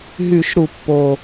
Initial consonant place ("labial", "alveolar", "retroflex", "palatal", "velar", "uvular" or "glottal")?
glottal